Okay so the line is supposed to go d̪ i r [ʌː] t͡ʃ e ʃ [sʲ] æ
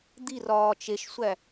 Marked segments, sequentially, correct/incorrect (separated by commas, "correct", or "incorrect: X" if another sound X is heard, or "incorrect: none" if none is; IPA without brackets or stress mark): incorrect: ɒː, incorrect: sʷ